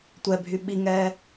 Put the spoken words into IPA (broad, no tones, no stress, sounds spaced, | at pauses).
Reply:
tʷ ɛ bʱ y ɓ i ŋ ɛ